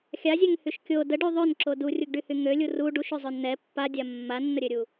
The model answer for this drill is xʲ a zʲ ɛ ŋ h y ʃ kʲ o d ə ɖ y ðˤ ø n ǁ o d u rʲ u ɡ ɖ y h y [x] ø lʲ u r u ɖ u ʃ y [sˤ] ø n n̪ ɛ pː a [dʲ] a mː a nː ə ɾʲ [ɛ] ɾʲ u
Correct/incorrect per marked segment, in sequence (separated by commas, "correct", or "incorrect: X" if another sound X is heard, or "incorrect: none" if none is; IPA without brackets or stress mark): incorrect: ŋ, incorrect: zˤ, correct, incorrect: ø